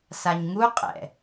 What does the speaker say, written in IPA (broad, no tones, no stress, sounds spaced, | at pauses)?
s a ɲ ŋ u qʼ ɛ̰